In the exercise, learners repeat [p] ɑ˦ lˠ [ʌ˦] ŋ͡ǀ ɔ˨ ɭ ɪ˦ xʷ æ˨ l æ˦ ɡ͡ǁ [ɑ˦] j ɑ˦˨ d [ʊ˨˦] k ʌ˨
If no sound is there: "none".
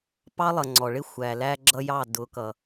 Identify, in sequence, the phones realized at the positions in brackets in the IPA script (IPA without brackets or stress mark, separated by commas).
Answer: p, ʌ˨, ʌ˦, ʊ˨˦